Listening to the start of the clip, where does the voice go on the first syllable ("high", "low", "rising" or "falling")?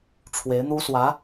rising